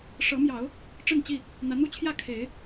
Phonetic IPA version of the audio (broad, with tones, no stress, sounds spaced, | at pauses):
ʂ ɤ˨˦ m j ɑ˨˦ ʊ̯ | ʈ͡ʂ ə˥˨ n t͡ɕ i˥˨ | n̪ ä˨˦ n̪ u˦ t͡ɕʰ j ä˥˨ kʰ e˨˦ ɪ̯